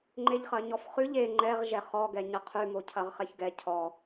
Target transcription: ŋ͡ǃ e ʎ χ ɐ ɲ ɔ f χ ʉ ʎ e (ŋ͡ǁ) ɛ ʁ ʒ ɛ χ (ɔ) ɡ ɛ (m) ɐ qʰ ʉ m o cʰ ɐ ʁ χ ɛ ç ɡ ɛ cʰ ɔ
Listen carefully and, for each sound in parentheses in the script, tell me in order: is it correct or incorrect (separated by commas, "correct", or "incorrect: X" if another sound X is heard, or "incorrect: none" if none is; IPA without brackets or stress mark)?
incorrect: ŋ͡ǃ, correct, incorrect: ɲ